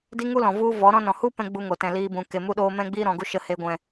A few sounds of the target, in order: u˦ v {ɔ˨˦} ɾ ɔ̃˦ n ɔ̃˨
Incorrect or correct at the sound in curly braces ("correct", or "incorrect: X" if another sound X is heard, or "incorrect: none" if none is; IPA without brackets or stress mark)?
correct